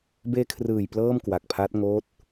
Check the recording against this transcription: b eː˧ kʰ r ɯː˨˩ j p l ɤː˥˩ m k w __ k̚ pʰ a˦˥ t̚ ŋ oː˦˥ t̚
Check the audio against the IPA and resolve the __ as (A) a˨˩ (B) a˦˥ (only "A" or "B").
A